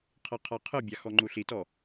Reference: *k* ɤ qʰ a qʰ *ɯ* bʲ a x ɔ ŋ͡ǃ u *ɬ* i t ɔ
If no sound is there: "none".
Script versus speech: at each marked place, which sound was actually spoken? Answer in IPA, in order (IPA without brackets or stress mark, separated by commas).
qʰ, ɯ, ɬ